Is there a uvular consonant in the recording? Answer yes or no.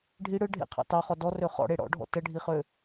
yes